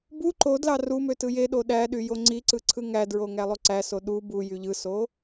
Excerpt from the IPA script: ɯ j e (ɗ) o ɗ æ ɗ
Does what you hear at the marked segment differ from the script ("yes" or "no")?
no